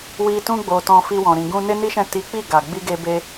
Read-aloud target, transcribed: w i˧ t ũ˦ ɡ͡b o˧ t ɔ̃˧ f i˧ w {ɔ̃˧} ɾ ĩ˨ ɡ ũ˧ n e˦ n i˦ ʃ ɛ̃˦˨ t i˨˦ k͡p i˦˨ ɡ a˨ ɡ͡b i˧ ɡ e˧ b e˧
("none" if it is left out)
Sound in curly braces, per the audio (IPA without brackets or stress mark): ɔ̃˨